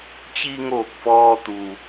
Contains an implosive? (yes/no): no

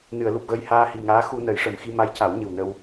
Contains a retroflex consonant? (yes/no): yes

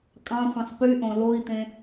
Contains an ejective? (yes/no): yes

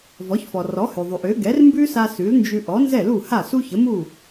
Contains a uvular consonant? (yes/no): no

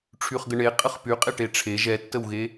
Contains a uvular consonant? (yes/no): yes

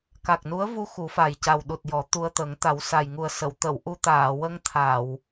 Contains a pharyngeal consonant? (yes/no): no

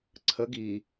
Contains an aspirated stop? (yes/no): yes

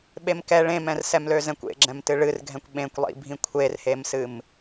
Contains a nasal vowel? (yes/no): yes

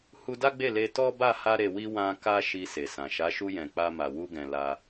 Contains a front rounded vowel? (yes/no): no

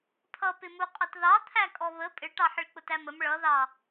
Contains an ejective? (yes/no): yes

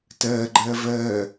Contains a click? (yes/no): yes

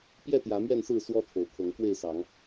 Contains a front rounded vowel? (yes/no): no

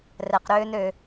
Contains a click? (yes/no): no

